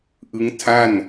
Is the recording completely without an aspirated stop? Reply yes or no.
no